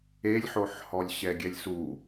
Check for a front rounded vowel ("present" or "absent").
absent